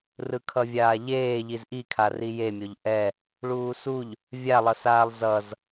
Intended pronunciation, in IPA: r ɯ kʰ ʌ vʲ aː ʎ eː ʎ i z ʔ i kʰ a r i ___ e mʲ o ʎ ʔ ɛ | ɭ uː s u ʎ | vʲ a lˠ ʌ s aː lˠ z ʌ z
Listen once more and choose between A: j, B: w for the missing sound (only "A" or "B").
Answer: A